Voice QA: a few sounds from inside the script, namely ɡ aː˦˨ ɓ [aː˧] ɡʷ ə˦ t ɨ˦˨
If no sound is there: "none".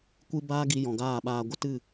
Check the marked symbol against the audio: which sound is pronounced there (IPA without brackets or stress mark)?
aː˧